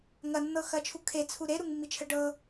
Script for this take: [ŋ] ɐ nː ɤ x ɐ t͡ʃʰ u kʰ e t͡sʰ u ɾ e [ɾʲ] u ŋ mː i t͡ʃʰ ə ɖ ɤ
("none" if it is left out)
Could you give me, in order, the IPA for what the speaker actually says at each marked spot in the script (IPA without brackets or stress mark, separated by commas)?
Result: ŋ, ɾ